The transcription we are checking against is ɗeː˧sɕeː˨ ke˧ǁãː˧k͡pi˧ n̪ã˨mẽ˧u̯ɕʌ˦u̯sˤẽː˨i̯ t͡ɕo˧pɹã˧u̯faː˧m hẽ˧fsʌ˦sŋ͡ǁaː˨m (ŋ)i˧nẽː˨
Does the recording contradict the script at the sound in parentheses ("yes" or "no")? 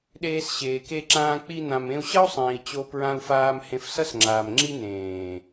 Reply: yes